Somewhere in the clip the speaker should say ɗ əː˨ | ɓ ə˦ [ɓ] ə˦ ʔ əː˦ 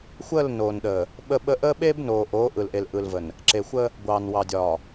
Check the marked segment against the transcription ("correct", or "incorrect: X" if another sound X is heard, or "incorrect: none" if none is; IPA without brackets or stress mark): correct